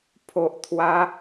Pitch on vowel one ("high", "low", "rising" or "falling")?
low